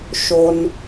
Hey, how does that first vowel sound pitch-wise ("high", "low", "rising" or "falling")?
low